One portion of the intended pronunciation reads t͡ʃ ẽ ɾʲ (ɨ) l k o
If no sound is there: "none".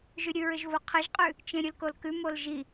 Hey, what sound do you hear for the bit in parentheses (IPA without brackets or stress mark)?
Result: ɨ